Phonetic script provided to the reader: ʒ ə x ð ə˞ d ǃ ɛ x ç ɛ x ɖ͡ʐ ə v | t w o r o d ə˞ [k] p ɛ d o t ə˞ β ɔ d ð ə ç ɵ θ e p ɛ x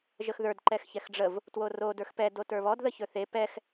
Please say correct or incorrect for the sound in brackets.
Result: incorrect